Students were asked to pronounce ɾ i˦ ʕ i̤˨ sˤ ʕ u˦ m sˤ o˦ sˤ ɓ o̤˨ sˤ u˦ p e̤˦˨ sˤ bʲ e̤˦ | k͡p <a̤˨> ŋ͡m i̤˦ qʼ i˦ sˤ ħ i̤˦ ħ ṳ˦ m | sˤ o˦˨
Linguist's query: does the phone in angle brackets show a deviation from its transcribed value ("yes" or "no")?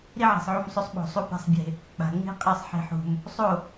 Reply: no